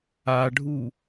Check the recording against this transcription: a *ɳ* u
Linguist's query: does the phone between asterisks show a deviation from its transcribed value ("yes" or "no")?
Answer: yes